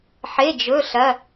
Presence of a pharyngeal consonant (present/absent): present